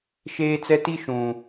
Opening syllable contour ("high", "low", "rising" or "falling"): high